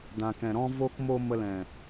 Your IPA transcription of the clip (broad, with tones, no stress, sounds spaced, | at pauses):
d ã˨ k ɛ̃˨ ɾ ɔ̃˧ v o˧ k m o˧ m ə˧ l ɛ̃˨